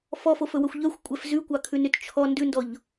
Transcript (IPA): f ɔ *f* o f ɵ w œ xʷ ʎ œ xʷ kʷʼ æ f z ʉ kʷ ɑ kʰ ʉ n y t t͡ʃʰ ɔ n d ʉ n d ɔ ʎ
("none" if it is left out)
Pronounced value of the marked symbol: f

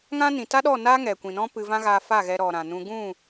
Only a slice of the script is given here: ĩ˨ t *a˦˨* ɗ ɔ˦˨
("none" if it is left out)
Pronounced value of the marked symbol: a˦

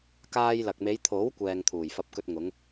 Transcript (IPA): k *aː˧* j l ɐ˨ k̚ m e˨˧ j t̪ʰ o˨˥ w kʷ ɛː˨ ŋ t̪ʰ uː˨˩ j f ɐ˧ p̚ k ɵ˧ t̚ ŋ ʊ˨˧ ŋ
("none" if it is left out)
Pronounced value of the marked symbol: aː˧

